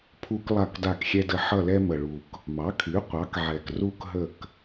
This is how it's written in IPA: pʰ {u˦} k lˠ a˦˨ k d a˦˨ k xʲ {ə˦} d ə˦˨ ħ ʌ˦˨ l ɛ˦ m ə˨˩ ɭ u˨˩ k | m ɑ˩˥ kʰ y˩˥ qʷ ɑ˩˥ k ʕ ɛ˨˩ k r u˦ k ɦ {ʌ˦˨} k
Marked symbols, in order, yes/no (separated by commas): yes, no, no